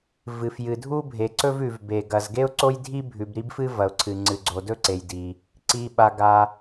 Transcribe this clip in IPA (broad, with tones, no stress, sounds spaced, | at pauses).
v ɨ˩ f j ɨ˩ dʱ u˥ bʱ e˩ ǀ ɵ˥ v ʉ˩ v b e˩ ɡ ɐ˩ z ɡ e˥ ʊ̯ ǀ o˥ j dʱ i˥ bʱ ʉ˩ b ɾ i˥ b f ɨ˥ v ɐ˩ ʊ̯ ǀʰ ɨ˩ ŋ͡ǀ ɨ˩ ɡ͡ǀ o˩ d ɵ˥ ǀ e˩ j d i˩ | ǀ i˩ ɓ a˩ ɡ a˩